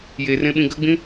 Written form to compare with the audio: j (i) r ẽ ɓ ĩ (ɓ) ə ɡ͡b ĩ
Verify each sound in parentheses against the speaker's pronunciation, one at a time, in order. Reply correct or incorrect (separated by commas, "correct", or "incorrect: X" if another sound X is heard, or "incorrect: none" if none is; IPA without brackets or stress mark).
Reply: incorrect: e, incorrect: ɡ